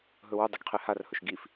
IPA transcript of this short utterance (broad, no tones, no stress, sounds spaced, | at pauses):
ɦ ɵ w ɵ dˤ ɨ ɡ qʰ e h a r h ɵ ʃ ɡ i f